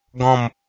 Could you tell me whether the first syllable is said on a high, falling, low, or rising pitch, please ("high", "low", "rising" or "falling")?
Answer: falling